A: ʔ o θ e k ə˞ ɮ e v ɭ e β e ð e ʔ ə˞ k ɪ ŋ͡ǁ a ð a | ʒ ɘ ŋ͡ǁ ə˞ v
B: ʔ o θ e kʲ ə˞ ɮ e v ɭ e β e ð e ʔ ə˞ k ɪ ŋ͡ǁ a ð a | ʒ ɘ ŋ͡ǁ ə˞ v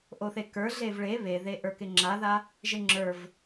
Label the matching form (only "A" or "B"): A